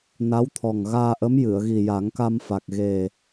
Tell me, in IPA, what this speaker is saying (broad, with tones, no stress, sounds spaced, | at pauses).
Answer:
n a˧˥ w t̪ʰ ɔ˨˩ ŋ ɣ aː˧ ʔ ə˧˥ m j ɨ˨˩˨ ə̯ ɣ i˨˩ j a˨˩˦ ŋ k a˧ m f a˨˩ k̚ ɣ e˨˩